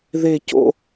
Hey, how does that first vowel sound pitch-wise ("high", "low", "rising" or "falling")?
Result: falling